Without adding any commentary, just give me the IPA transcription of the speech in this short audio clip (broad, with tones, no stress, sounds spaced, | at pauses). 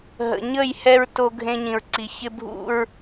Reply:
ɦ ə̰˨ ɲ ə˦˨ j h ɛ˦ ɹ t o˦ ɡʱ ẽ˦ ɲ ĩ˨ ɹ ǀ i˨ ç ɪ˦ bʱ ṵ˦ ɹ